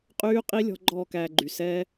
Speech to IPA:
qʼ yː˦˥ qʼ i˦˥ lʲ ɔ̤˦˥ ɡ͡ǃ ɔː˥˧ k æː˧ ɡ͡ǃ y˩ s ɛ˦˥

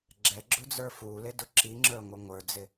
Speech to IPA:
ɡ͡ǁ ɛ ɡ͡ǁ ʊ d͡z ə˞ f u l ɪ d ʊ ǁ i ŋ͡ǁ ə˞ ŋʷ ə ŋʷ ə˞ d͡z ɪ

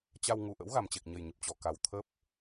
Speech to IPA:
t͡ɕ a˧ w ŋ u˨˩ ʔ ə̰˧˥ w ɣ a˨˩ m t͡ɕ e˨˩ k̚ ɲ ə˨˩ j ɲ ə˨˩ p̚ t͡ɕ ɔ˨˩ k a˨˩ w t̪ʰ ə˦˥ p̚

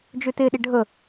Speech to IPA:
d͡ʒ ø t e ɗ ɪ ɖʱ ə

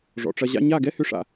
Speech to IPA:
ʐ ɔ̰˨ ʈ͡ʂ ɐ˧ ʑ a̰˦ ɲ a˦˨ ɡ ɛ˦ h ʏ˧ ʂ a̰˨

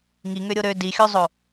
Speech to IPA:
ŋ i ŋ ø ɾʲ o ɾ ø d i xʲ o zˤ o

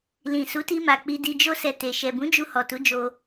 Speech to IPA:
l ĩ˨ s u˨˦ t i˧ m a˨ k͡p i˧ d i˧ d͡ʒ o˦ s ɛ˧ t e˨ ʃ ɛ˨ b ũ˨˦ d͡ʒ u˧ h ɔ˨ t u˨˦ d͡ʒ o˧

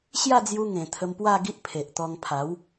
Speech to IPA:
ɕ j a˥˧ d͡z j u˧ ŋ ẽ˨˩ t̪ʰ ə˧ m p w a˥˧ ɡ i˦ ʔ pʰ e˨ ʔ t̪ ɔ˧ ŋ pʰ a˨˦ w

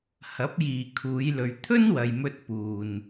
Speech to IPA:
h ɐ˨˥ p̚ j iː˨ kʰ uː˨˧ j l ɵ˨ ɥ t̪ʰ ɵ˥ n w ɐ˨ j m ɵ˧ t̚ p uː˨ n

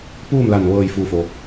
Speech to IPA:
p uː˥˨ m l a˧˩ n ʋ ɤː˧˩ j f uː˧˩ f o˩

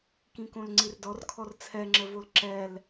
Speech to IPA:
k ĩ k õ l ŋ͡ǀ i r d ɔ r kʰ ɔ r t͡sʰ ɛ ŋ͡ǁ ə v o l ǁ ɛ l

